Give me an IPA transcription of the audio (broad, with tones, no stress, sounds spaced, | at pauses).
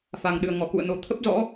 f a˨˩ ŋ ɗ ɨ˨˩ ə̯ ŋ ɔ˧˩ k ṵ˧˨ ə̯ n o˨˩ t̪ʰ ə˦˥ p̚ z ɔ̰˧˥